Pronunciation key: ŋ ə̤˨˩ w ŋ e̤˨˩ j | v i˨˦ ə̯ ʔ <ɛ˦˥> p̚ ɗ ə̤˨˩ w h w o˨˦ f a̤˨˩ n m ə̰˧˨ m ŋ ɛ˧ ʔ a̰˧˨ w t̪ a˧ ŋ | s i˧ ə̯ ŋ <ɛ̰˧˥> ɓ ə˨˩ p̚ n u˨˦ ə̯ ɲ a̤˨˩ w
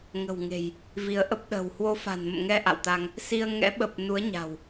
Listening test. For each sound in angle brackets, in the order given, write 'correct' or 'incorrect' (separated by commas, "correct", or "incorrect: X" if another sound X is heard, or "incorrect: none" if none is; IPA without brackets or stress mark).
incorrect: ə˦˥, correct